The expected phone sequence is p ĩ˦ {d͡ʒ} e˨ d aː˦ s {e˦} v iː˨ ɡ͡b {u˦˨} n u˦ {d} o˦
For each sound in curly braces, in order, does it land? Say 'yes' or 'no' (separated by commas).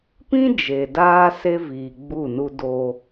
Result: yes, yes, yes, yes